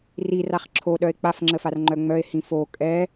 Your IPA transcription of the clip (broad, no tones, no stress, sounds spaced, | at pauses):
r i r a χ ǁʰ o ɗ œ e̯ k͡p a f ŋ͡ǁ ə f a r ŋ͡ǃ œ ŋ͡m œ e̯ h ĩ f o kʼ ɛ